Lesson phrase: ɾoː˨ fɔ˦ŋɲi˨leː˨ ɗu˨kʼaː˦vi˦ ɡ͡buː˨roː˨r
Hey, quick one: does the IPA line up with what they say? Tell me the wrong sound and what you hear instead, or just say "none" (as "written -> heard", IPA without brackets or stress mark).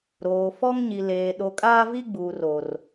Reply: u˨ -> o˨